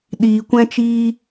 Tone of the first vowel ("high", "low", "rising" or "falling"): low